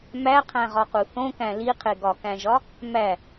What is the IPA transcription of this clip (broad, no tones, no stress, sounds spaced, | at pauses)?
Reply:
m æ qʰ æ̃ ʁ ɒ q u θ õ k æ̃ l i qʰ e ɡ ɒ k æ̃ ʒ ɒ | m æ